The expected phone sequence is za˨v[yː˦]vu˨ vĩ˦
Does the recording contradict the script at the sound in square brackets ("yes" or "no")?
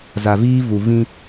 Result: yes